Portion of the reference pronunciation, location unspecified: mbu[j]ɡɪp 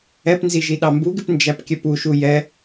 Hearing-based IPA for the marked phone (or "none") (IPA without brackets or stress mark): none